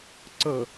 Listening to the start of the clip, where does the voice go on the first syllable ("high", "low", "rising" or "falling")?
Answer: low